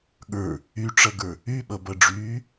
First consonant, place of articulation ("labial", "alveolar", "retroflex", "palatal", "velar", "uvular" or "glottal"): velar